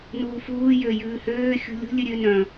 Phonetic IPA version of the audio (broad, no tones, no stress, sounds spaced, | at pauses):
n uː f uː j ø j ʉː h øː xʲ ṳ lʲ ṳ lʲ ʉ ɾʲ ø n œ̃